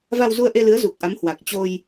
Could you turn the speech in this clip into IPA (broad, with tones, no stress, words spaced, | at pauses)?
va˧wzu˧ə̯ʔe˧lɨ˨˦ə̯ zu˨˩k̚ʔa˨˦mhwa˨˩k̚ t͡ɕo˧j